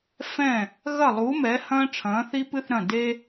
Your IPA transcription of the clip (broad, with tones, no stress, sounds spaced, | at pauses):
f ɛ̃˧˩ | ɣ ɐ˧˩ lˠ u˩˧ m ɛ˩˧ h ɐ̃ː˧ ʈ͡ʂʰ ɐ̃ː˩˧ θ i˧ p ɨ˧ θ ɾ ɐ̃˧˩ d e˧